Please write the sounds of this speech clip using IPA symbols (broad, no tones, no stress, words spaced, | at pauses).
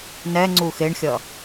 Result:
nɛ ŋ͡ǀuxeɳxʲʌ